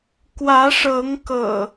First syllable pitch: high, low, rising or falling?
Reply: rising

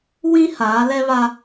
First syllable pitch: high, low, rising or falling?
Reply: high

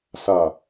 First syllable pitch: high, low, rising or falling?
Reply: low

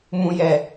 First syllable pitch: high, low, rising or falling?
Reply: low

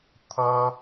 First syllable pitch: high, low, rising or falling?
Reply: high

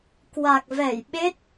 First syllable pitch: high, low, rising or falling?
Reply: low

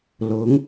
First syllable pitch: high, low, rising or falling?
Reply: rising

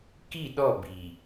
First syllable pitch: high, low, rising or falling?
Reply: falling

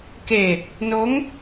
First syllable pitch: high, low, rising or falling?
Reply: low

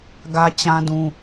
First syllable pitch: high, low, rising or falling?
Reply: high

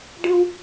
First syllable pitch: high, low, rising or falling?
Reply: high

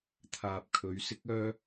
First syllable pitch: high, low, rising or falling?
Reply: low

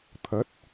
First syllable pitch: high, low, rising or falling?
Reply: rising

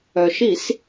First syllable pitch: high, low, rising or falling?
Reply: low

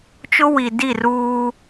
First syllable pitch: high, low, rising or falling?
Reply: high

